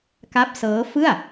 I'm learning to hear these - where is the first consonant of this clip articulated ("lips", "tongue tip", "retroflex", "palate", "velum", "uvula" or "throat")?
velum